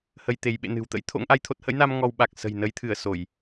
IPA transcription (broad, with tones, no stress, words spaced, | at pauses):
hə˧jt̪e˨˦j ɓḛ˧˨nɨ̤˨˩wt̪ə̰˧˥j t̪ʰo̰˧˥ŋʔa˧jt̪ʰo˦˥t̚ hə̰˧˥jna˧m ŋɔ˧wɓa˨˩k̚ sə̤˨˩jnə˨˦jt̪ʰɨ˧˩ə̯ so˧˩˨j